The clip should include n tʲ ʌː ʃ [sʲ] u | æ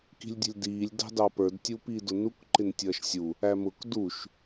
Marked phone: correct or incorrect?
correct